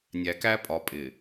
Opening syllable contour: low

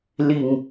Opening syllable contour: low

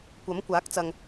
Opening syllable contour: rising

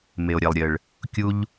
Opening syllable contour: low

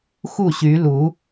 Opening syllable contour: falling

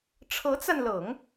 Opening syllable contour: rising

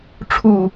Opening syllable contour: low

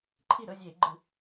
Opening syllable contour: falling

